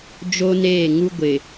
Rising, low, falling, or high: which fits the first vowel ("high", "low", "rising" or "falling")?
high